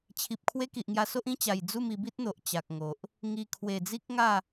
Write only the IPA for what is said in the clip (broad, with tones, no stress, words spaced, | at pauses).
t͡ɕʰi˨p̚ kʰwe˦ki˨ʔŋja˧so˦ʔ ĩ˦t͡ɕa˨˩j d͡zu˥˧mi˧bi˦t̚n̪o˨ʔ t͡ɕa˨k̚ŋo˨ʔ | ŋi˨˩ kʰwe˨˩d͡zi˦k̚ŋa˥˧